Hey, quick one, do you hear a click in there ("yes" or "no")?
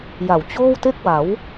no